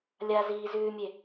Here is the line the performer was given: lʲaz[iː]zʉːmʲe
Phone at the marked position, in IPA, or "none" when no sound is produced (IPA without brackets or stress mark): iː